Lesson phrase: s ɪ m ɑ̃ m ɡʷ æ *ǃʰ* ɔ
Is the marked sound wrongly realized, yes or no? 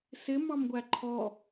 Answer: no